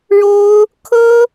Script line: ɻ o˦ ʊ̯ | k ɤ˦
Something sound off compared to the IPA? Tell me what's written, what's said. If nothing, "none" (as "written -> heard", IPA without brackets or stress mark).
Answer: k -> kʰ